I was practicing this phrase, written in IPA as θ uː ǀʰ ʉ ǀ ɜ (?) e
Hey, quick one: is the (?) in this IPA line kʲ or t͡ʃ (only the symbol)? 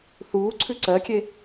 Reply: kʲ